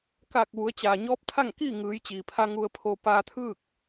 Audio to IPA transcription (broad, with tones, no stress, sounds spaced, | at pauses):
k aː˧˩ k̚ ʋ u˩˧ ə̯ t͡ɕ aː˩ ɲ ɔː˧˥ p̚ t̪ʰ a˥˨ ŋ k iː˥˨ ŋ ɯː˩˧ j t͡ɕ iː˩ pʰ a˧ ŋ u˧ ə̯ pʰ o˧ p aː˧ t̪ʰ ɯː˥˨ k̚